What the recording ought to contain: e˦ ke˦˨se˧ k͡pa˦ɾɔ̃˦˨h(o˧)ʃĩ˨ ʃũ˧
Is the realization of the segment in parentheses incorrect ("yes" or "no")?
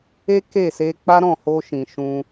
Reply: no